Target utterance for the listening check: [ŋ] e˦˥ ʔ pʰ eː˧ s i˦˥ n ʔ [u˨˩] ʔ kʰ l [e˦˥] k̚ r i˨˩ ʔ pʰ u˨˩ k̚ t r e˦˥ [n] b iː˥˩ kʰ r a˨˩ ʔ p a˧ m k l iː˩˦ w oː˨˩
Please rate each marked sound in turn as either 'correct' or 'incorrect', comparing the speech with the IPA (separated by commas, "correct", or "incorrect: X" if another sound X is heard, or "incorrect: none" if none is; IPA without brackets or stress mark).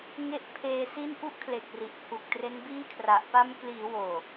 correct, incorrect: u˦˥, incorrect: e˨˩, correct